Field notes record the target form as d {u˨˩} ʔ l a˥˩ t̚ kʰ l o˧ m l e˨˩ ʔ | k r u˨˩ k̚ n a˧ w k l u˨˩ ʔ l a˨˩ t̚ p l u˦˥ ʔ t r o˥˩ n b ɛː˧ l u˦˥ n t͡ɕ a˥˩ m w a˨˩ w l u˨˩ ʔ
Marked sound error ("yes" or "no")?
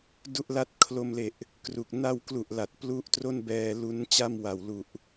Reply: yes